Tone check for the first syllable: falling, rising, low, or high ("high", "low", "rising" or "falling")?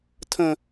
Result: high